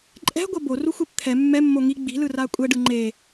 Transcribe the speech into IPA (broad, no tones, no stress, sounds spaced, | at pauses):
ǃʼ ɛ̤ ɡʷ ʌ b o r u xʷ e p t̪ʰ ɛ mː ɛ mː o ŋ i ɡ͡b i̤ l ɯ r a kʷʼ ɛ ɖ ɯ ŋ͡ǃ e